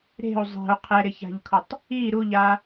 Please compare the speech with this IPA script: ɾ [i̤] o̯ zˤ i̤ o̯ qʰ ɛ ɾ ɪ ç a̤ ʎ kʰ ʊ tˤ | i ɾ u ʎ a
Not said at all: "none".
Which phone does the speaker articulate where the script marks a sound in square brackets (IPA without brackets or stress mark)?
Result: e̤